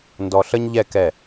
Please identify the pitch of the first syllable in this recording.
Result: low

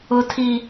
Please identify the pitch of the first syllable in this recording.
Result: high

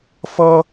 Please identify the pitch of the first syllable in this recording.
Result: high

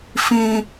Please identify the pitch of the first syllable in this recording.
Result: high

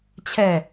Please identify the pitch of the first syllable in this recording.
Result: falling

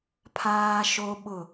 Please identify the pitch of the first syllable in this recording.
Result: high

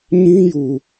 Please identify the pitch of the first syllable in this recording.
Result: high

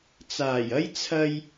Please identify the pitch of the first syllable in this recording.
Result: low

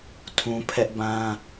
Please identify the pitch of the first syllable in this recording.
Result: high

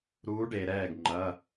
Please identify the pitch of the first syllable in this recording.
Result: rising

